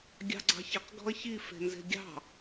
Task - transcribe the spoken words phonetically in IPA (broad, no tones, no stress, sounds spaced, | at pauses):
ɡʲ ɑ̤ ɡ͡ǀ ɑ̤ ç ɪ q ɡ ɔ̤ ɐ̯ ç i f e̤ n z e̤ ɡʲ ɑ̤